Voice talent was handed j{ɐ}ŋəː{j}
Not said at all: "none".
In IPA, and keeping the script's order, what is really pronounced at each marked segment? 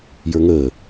ə˞, none

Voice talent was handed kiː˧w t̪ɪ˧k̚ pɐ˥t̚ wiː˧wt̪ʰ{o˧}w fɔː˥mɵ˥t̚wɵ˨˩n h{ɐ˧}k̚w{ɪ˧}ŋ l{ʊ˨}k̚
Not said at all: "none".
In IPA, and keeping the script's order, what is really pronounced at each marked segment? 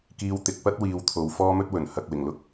o˨˧, ɐ˨, ɪ˨˩, ʊ˥

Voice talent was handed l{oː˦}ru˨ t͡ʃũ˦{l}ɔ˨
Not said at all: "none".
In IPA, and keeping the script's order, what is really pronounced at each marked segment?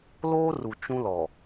oː˦, l

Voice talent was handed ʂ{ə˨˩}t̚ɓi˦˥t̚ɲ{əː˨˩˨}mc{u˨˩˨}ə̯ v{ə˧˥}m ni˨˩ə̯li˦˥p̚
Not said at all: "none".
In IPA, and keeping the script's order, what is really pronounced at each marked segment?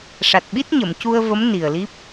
a˨˩, ə˨˩˨, u˧, ə˧˥

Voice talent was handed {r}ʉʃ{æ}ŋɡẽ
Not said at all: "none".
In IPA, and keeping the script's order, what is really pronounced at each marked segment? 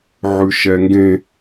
ʕ, ɛ

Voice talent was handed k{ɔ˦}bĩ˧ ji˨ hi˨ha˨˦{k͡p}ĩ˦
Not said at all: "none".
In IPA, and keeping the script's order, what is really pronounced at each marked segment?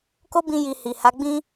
o˦, ɡ͡b

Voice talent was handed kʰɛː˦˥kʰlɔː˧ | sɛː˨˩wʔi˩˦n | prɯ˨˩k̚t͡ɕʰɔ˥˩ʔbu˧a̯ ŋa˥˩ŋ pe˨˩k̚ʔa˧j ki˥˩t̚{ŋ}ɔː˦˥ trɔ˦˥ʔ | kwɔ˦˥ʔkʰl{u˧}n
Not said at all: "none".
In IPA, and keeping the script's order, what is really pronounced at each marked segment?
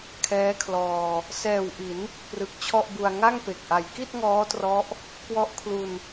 ŋ, u˧

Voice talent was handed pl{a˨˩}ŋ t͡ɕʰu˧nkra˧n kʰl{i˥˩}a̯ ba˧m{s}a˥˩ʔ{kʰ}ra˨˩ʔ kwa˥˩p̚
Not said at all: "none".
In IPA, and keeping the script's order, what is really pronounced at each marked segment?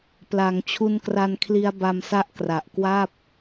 a˩˦, i˦˥, s, k

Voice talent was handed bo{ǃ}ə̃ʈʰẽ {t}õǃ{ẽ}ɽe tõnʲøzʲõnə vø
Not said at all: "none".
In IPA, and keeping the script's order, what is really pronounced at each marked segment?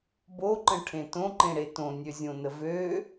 ǃ, t, ẽ

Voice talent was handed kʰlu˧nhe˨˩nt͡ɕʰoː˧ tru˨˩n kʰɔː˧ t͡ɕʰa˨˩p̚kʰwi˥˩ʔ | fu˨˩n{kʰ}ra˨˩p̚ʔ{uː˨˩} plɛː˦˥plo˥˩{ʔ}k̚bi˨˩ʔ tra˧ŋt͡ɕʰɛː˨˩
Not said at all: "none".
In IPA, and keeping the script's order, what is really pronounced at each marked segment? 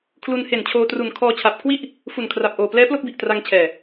kʰ, oː˨˩, none

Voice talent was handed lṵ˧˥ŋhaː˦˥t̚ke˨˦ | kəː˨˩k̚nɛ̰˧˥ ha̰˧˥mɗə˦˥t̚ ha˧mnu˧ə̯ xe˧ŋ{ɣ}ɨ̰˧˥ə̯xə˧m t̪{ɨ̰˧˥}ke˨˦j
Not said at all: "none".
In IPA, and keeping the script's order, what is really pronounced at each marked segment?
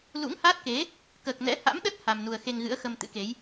ɣ, ɨ̰˧˥

